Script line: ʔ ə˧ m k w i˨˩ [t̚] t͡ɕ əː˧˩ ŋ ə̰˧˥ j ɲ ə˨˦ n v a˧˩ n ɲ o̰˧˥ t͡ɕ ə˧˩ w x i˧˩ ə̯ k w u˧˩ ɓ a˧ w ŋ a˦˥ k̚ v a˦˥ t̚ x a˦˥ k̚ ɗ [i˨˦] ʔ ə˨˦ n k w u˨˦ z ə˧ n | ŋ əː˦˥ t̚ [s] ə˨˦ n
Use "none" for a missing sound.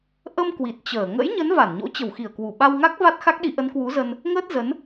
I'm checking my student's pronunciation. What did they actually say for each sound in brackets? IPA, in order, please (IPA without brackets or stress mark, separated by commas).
t̚, i˨˦, z